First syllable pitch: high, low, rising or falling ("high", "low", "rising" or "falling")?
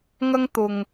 high